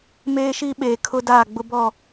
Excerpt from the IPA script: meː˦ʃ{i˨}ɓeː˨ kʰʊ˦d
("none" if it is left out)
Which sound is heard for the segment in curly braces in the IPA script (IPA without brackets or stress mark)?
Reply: i˦